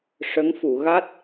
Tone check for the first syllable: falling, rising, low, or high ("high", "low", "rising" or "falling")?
rising